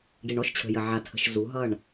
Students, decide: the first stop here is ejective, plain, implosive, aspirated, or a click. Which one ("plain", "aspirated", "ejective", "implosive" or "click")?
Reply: plain